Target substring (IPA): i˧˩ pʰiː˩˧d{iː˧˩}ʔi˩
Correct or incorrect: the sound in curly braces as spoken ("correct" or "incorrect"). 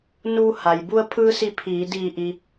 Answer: correct